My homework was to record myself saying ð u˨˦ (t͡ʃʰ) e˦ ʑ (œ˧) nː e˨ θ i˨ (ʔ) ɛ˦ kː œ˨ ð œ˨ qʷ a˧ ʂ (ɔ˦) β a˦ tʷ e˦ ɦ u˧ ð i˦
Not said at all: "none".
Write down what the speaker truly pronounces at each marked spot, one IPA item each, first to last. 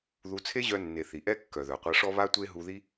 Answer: t͡sʰ, œ˧, ʔ, ɔ˦

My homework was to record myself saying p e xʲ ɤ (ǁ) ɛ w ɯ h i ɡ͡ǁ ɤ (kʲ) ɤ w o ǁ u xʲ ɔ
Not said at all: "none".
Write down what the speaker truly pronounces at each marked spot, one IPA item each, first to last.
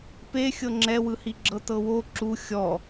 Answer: ŋ͡ǁ, t

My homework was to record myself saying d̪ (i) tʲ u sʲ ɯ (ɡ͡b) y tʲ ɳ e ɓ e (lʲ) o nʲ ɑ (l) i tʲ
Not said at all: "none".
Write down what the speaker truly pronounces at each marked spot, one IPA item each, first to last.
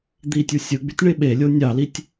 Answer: i, ɡ͡b, lʲ, l

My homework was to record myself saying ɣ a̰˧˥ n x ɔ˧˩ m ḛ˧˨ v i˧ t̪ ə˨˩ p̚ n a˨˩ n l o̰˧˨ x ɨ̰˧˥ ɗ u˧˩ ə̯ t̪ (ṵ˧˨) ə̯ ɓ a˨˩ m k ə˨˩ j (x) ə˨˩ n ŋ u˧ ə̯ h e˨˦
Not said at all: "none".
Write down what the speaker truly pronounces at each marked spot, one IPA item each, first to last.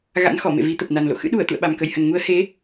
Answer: ṵ˧˨, h

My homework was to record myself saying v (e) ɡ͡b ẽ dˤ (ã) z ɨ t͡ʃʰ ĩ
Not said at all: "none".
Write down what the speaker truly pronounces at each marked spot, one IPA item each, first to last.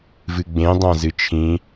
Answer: ɨ, ã

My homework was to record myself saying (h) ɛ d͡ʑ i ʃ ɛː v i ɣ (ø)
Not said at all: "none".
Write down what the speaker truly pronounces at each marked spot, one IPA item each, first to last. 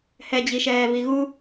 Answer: h, u

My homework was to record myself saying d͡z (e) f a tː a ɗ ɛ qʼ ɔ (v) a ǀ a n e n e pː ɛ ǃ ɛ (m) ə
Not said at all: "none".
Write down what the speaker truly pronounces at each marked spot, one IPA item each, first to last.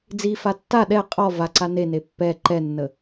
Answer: i, v, nː

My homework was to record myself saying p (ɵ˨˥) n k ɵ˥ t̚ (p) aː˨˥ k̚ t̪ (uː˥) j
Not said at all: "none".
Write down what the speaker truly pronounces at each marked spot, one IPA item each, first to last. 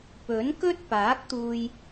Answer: ɵ˨˥, p, uː˧

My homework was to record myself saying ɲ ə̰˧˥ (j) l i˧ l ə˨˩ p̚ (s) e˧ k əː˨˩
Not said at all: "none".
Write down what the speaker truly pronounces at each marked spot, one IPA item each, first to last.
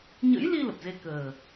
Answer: j, z

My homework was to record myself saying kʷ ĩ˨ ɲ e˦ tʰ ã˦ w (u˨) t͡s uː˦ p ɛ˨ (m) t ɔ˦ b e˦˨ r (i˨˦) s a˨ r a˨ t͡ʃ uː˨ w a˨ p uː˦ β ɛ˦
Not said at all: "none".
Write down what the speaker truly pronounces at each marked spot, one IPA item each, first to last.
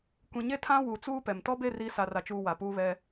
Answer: u˨, m, i˨˦

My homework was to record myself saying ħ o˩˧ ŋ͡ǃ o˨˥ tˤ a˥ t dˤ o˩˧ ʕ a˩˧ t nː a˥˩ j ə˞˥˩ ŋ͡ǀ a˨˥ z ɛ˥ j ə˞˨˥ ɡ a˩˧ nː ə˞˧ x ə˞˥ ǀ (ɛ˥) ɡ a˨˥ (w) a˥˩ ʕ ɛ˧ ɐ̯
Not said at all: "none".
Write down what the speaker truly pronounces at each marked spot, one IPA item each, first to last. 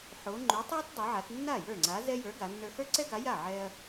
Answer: ɛ˥, j

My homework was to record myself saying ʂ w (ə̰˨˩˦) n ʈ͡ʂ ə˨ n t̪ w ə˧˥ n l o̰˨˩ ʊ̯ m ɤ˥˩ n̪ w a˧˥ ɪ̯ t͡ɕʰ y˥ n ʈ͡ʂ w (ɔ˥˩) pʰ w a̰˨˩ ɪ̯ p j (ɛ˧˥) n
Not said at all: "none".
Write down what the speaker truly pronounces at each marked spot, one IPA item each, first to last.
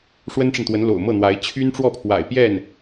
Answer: ə˥, ɔ˥˩, ɛ˥˩

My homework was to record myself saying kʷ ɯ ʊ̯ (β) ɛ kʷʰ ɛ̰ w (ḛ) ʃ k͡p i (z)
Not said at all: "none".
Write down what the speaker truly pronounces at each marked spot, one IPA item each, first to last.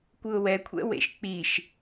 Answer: w, ḛ, ʃ

